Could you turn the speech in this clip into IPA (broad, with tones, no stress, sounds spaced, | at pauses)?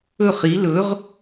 ɵ˦˨ χ i˨˦ l ɵ˨˦ ʁ